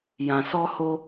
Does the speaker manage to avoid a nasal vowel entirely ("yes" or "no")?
no